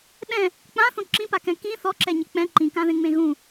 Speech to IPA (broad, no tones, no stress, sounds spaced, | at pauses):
ɗ ɛ̃ | k͡p ã θ õ ǁ ĩ p a k ɛ̃ k ĩ θ ɔ ǁ ɛ ɲ ɪ k͡p ɛ̃ ǃ ĩ k ã ð ẽ ŋ͡m ẽ ɣ ũ